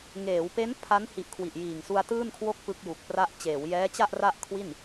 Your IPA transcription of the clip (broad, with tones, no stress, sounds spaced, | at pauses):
ŋ eː˩˦ w p e˦˥ n pʰ a˦˥ n h i˨˩ ʔ kʰ w i˨˩ ʔ j iː˨˩ ŋ s u˧ a̯ t ɯː˥˩ n kʰ w o˥˩ k̚ p ɯ˦˥ k̚ j u˨˩ k̚ p r a˥˩ ʔ t͡ɕ eː˩˦ w j ɛː˦˥ t͡ɕ a˥˩ ʔ r a˥˩ ʔ kʰ w i˥˩ n